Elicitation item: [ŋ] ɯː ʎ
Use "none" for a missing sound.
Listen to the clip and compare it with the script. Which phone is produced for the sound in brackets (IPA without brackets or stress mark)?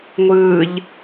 ŋʷ